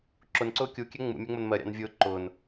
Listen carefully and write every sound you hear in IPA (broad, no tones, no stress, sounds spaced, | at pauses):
ǁ ʊ n ǀ ʊː kʲ u kʲ ɛ ŋ͡m ṵ mʲ æ ŋ͡m ʊ n m ɜ ɾʲ ɑ̰ n vʲ ʊː ǃ ʊː n